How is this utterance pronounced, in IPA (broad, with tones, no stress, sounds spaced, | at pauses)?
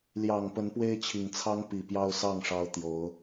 l j ɑ˨˩ ŋ p ə˨˦ n p w e˦ ɪ̯ t͡ɕʰ i˨˩ ŋ t͡sʰ ɑ˦ ŋ p i˨˩ p j ɑ˦ ʊ̯ s ɑ˥˨ ŋ ʂ ɑ˨˦ ʊ̯ t̪ j o˨˦ ʊ̯